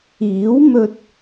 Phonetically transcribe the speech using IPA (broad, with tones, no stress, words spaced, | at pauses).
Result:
iː˨˥w mɵ˥t̚